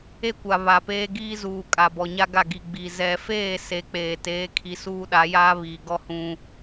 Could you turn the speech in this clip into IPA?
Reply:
e˦ kʷ a˨ β a˨ p eː˦ ɡ iː˦ z uː˨ kʼ a˨ b ɔ˨ ɲ a˦ ɡ a˦˨ ɡ i˨ ɡ͡b i˨ z ɛ˨ f eː˦˨ s e˨ k͡p eː˨ t eː˨˦ kʰ i˨ s uː˦ ɗ a˨˦ j aː˦ β iː˨ ɡ ɔ˦ h ũ˦

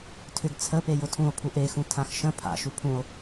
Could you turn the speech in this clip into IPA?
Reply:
tʰ ʏ ɡ t͡sʰ ə p e j ʊ tʰ ũ o̯ pʰ u ʔ e x ũ tʰ ã x ʃ ə̃ pʰ a̰ ʃ u pʰ ũ o̯

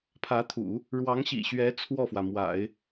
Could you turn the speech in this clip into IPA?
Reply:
pʰ ä˧˥ t̪ʰ ṵ˨˩˦ | ɻ w ɑ˧˥ ŋ ɕ ḭ˨˩ ɕ ɥ ɛ˧˥ t͡sʰ w ɔ˥˩ f w ä˩ m w a̰˨˩˦ ɪ̯

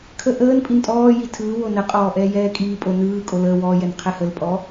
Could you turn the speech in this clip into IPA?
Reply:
kʰ ə ʔ əː n pʼ i n tʼ ɔː j i tʰ ɯː w o n ə qʼ ɔː ʔ ɛː j ɛː kʼ iː pʼ o n ɯː kʼ o l əː w ɔː j ɛ n qʰ ɛ h ə l pʼ ɔ

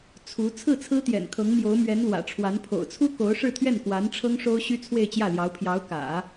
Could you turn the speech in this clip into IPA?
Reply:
t͡sʰ u˧˥ t͡sʰ ɹ̩˥˩ t͡sʰ ɹ̩˥ t̪ j ɛ̰˨˩ n kʰ ɤ˧˥ ŋ m j o˧˥ ʊ̯ m ɥ ɛ˧˥ n l w ä̰˨˩ ʈ͡ʂʰ w a˧˥ n pʰ o̰˨˩ ʊ̯ t͡sʰ u˥ k o˧˥ ʊ̯ ʂ ɻ̩˥˧ t̪ʰ ɥ ɛ˥˩ n k w a˧˥ n ʈ͡ʂʰ ɤ˥ ŋ ʂ o˥ ʊ̯ ɕ y˥ t͡sʰ w e˥˧ ɪ̯ t͡ɕ j ä˥˩ l j ɑ˧˥ ʊ̯ pʰ j ɑ˧˥ ʊ̯ k ä̰˨˩˦

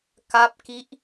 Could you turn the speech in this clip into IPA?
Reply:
k a˦˥ p̚ k i˦˥ ʔ

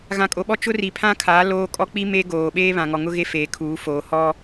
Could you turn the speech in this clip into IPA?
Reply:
ɣ ã˨ kʼ o˨ ɓ ɔ˦ t͡ʃ ʊ˦ r i˨ pʰ ã˦ kʰ aː˨˦ l oː˦ kʼ ɔ˦ k͡p i˦ m e˦ ɡ oː˨ ɓ eː˦ β ã˨ ŋ ɔ˨ ŋ ʊ˦ ɣ e˦ f eː˨ kʰ uː˨˦ f oː˨ h ɔ˦

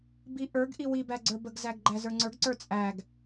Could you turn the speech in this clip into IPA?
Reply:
b i ʔ ə˞ ɡ ʔ i w i b æ ɡ͡ǀ ə˞ b ə ɡ z æ ɡ ɡ͡ǃ æ z ə˞ ŋ͡ǀ ə˞ ɡ ǀ ə˞ t͡sʼ æ ɡ

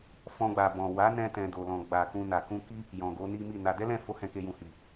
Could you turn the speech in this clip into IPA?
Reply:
f ɔ̃˦ ɡ͡b a˧ b ɔ̃˨ w a˨˦ n ɛ̃˧ t ɛ̃˨ d o˨ l ɔ̃˨ ɡ͡b a˨ k ũ˧ n a˨ k ũ˧ k i˦ | j ɔ̃˨ ɡ o˨˦ n i˦ m i˦˨ n a˧ d ɛ˦ l ɛ̃˦˨ f o˨˦ h ɛ̃˧ k e˧ j ũ˨ h i˨

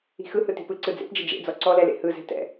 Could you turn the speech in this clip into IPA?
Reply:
i̤ x ɯ h ɯ t i̤ p ɯ ǀ ɯ d͡z ḛ p d͡ʒ ə d͡ʒ ḛ d͡z ɔ ǀ ɔ l ɛ l ḛ h ɯ z ɛ̤ t ɛ̰

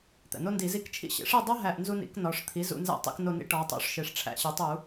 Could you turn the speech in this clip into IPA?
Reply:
t̪ æ̰˩ n o˦ n d i˧˩˧ z i˦˨ k t͡ʃʰ ḭ˦˨ ɕ ḛ˩˥ ʂ i˦˨ dˤ o˦ ɦ æ˦˨ ʔ n z u˦ n ḭ˩˥ k n ɒ˩˧ ʂ t̪ʰ i˩˥ z ṵ˧˩˧ n z æ̰˦˨ tˤ ḭ˧˩˧ k n o˦˨ n ḭ˦ ʈ ɒ˩˧ tˤ o̰˩˥ ʂ ʃ e˩ ʂ ʈ͡ʂʰ æ̰˧˩˧ ɕ e˩˧ tˤ u˧˩˧

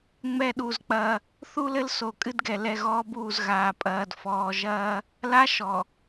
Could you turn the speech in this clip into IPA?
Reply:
ŋ͡m ɛ˦˨ ɗ u˦˨ z k͡p ɐː˦ | θ u˦ l ɘ˦ l s o˨ kʼ ɨ˦ d ɡ ɛ˨ l ɛ˨ ɣ ɔː˦ b uː˦˨ z ɣ aː˨ pʼ ɐː˨ d f ɔː˨ ʒ ɐː˦ | l a˦ ʃ ɔ˨

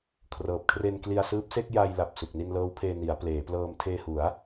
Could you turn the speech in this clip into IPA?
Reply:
kʰ r ɤː˨˩ p̚ kʰ r e˧ n k l i˧ a̯ s ɯː˦˥ p̚ s e˥˩ k̚ j a˧ j l a˨˩ p̚ s u˨˩ k̚ n i˧ n l ɤː˦˥ w pʰ eː˧ n i˩˦ a̯ p l eː˩˦ p l ɤː˧ m tʰ eː˧ h u˩˦ a̯

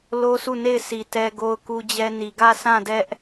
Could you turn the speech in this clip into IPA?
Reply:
l o˦ sʰ u˦˨ n e˦˨ ɪ̯ s i˨ t ɛ˦ ɡ o˦ ʊ̯ k u˦ d͡ʑ ɛ˦ n i˨ ɡ ä˦˨ sʰ ã˦˨ d ɛ˦ ʔ

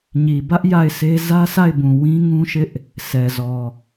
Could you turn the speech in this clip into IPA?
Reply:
ɲ i˨ b ä˦ ʔ j a˦˨ ɪ̯ s e˦ z ä˦ sʰ a˦˨ ɪ̯ b ũ˨ w ĩ˦ ŋ ũ˦ ʃ ɪ˦ ʔ | s ɛ˨ z ɔ˨

